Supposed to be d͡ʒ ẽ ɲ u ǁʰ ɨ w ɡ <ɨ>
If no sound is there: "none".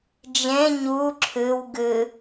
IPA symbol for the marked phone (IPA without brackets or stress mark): ɨ